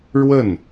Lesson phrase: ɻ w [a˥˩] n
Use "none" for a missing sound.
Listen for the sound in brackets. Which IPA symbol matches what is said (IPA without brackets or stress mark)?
ə˥˩